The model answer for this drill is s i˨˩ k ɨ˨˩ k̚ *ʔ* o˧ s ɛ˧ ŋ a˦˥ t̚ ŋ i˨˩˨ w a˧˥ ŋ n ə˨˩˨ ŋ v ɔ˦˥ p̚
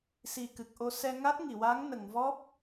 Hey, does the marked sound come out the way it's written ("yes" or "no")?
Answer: yes